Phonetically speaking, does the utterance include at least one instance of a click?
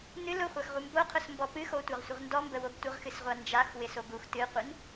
no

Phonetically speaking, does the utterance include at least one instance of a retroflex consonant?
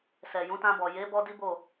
no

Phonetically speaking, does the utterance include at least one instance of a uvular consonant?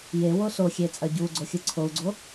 no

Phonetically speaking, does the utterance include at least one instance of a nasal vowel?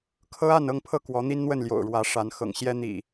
no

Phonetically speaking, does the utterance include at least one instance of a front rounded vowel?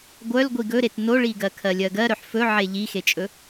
yes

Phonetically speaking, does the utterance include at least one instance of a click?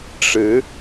no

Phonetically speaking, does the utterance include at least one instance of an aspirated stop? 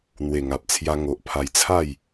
yes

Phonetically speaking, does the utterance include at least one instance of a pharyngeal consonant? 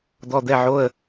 yes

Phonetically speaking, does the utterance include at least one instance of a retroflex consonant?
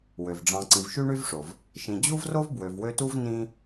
yes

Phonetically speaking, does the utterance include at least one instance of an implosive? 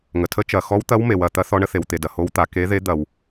no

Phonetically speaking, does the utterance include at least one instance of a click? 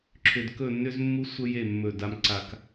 yes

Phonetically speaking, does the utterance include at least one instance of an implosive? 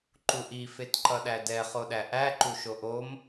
yes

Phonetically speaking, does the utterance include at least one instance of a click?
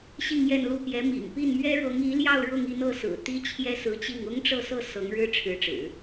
no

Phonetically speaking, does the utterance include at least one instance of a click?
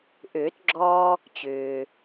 yes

